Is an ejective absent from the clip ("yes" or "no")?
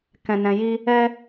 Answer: yes